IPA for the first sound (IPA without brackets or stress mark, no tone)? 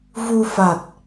v